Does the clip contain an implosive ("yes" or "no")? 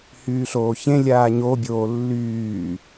no